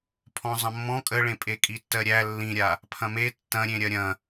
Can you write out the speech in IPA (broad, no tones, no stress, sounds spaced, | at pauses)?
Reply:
pʰ ɔ̃ zˤ ɐ̃ mː ɔ̃ kʼ ə ɭ ẽ pʼ e kʼ i tː ɜ ɾʲ æ lː ĩ ɾʲ a | pʰ ɐ̃ m e tː ɐ̃ ɾʲ ẽ ɾʲ ɐ ɾʲ ɐ̃